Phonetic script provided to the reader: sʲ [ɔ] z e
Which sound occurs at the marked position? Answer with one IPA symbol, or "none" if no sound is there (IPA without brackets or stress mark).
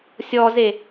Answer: ɔ